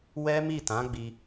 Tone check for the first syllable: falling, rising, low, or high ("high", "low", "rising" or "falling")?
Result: high